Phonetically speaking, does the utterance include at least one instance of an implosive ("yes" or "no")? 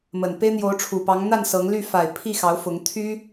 no